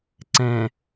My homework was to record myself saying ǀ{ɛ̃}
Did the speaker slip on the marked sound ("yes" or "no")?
no